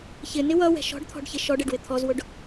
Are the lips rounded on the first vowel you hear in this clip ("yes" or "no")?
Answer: no